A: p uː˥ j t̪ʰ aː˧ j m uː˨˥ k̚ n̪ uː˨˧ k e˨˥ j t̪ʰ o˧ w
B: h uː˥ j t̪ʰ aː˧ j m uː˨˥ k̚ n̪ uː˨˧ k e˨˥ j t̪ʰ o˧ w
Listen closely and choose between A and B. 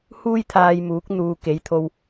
B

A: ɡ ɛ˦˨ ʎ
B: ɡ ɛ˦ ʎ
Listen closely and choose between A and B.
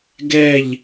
A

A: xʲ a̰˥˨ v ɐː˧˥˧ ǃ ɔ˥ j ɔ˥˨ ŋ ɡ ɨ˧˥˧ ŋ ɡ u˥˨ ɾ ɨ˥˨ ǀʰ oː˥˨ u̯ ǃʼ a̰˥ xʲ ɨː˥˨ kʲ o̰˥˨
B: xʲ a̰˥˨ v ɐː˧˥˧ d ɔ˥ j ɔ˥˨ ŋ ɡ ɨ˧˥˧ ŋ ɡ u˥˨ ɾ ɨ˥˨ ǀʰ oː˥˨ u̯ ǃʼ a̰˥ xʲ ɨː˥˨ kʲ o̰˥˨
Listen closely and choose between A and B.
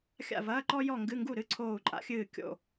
A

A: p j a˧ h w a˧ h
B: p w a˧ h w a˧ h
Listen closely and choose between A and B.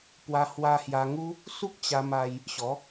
B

